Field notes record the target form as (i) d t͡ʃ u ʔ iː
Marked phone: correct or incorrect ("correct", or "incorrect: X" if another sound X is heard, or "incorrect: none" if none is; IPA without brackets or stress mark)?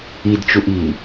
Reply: correct